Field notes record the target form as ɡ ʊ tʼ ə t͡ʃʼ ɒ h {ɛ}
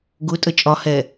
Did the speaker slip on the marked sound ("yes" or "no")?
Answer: no